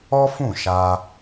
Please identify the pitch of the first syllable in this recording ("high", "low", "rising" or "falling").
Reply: high